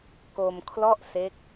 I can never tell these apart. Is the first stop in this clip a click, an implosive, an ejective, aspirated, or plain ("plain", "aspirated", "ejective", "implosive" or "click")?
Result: plain